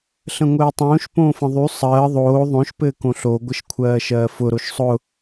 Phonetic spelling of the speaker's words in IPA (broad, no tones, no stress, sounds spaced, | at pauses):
ɬ ə̃ ŋʷ ɘː tˤ õː ʃ p õː f ə̃ ðˤ y sˤ ɜː ðˤ oː ðˤ õ ʃ p ɘː k õ ɬ o ɡʷ ə ʃ kʷʰ ɜː ʃ ɜː f ʊ ɾ o ʃ sˤ ʊ